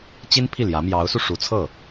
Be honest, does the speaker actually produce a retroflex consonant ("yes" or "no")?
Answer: yes